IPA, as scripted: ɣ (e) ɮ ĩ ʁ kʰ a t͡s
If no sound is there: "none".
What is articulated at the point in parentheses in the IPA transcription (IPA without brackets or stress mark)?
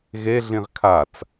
e